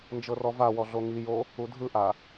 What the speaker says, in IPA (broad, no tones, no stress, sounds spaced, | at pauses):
n d͡ʒ ɤ r ɔ v a w ɔ ɮ o ŋ i j o | u dʱ ɯ ʔ a